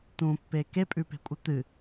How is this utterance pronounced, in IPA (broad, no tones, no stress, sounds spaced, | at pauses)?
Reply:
t̪ ũ pː e k e pʼ ʉ p e̤ kʷʼ ɨ t̪ ɨ